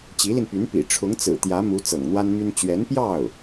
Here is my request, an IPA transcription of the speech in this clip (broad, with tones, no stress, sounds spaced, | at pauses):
t͡ɕ i˧˥ l i˧ n p y˧˥ n p ḭ˨˩ ʈ͡ʂʰ ʊ˧˥ ŋ t͡s ɹ̩˨˩ t̪ j ä˧˥ m u˧˥ t͡s ɤ̰˨˩ ŋ n̪ w a˥ n m y˥ n t͡ɕ ɥ ɛ˧˥ n p j ɑ˥˩ ʊ̯